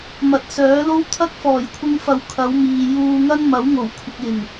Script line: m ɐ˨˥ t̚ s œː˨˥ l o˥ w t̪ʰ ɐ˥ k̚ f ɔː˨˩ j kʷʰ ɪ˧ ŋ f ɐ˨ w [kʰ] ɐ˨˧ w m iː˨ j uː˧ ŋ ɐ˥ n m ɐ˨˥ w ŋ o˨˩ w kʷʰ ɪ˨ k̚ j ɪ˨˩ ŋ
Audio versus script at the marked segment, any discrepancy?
no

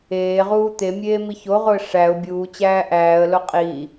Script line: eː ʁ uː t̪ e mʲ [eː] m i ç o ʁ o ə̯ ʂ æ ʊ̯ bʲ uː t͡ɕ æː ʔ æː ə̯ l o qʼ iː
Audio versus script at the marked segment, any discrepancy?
no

